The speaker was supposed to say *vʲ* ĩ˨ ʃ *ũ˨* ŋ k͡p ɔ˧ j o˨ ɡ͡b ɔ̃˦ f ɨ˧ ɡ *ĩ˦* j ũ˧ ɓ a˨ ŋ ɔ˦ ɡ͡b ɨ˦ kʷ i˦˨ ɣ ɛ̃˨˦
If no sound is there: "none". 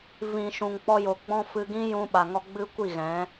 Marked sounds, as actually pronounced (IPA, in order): v, ũ˨, ĩ˦

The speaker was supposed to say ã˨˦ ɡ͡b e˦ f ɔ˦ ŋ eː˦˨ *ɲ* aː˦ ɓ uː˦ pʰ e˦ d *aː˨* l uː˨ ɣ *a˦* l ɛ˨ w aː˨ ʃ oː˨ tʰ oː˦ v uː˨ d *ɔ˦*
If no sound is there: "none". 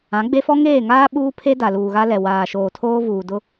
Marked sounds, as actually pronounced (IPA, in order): ŋ, a˨, a˦, ʊ˦

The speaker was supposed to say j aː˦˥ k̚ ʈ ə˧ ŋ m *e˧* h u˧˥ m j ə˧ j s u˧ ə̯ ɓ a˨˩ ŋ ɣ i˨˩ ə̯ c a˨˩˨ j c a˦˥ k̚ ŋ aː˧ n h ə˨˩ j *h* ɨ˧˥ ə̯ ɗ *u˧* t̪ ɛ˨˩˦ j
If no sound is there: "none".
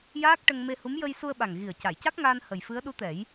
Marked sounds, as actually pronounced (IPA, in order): e˧, f, u˧˥

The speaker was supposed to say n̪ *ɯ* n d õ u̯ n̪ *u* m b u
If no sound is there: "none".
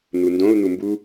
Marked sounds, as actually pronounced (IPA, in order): u, u

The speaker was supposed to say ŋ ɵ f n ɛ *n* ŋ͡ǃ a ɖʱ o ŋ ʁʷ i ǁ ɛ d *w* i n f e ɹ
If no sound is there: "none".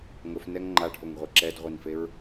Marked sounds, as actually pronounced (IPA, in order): ŋ, ʁʷ

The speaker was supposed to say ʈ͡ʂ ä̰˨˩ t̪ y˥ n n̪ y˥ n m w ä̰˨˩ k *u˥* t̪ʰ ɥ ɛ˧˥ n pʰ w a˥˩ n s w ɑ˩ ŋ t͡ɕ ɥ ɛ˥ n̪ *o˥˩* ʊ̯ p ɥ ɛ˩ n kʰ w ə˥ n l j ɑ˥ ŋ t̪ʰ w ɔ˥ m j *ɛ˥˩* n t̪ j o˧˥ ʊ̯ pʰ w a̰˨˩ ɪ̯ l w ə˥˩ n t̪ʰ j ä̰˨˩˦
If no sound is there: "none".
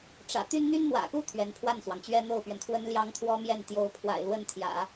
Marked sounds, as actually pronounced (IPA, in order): u˥˩, o˥˩, ɛ˥˩

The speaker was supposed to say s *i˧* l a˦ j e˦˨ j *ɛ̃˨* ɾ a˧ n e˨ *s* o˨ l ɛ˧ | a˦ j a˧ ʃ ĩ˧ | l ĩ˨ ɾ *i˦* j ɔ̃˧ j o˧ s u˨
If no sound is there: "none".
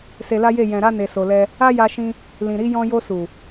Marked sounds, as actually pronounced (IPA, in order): e˧, ɛ̃˨, s, i˨˦

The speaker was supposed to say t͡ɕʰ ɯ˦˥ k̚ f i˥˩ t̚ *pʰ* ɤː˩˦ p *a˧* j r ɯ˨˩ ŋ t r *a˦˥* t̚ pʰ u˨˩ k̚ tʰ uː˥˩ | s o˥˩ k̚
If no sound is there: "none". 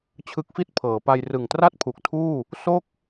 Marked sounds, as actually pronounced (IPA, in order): pʰ, a˧, a˥˩

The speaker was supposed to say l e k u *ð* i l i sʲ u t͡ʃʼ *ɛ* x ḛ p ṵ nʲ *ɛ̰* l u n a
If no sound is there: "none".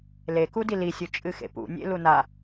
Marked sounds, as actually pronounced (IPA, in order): d, ɨ, ḛ

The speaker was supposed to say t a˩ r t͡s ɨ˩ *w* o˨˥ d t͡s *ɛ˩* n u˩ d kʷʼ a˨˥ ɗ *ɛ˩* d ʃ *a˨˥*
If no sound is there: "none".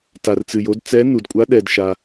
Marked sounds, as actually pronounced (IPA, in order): j, ɛ˨˥, ɛ˩, a˩

